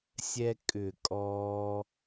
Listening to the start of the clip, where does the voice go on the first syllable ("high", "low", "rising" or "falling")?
high